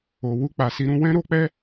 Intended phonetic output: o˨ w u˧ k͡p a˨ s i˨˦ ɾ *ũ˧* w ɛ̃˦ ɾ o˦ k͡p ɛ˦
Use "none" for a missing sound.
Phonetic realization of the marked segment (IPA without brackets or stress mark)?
ũ˧